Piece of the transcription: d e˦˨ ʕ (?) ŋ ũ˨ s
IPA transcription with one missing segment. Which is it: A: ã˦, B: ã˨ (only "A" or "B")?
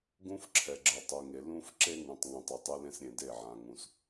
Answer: B